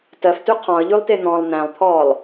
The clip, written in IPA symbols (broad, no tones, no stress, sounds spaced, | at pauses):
t ɜ f t ʉ qʰ ɔ̃ ə̯ ʎ ʉ lˠ t e n̪ ɔ̃ lˠ n̪ æ̃ lˠ t̪ʰ ɔː lˠ